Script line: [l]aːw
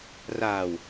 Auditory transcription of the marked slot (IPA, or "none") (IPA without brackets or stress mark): r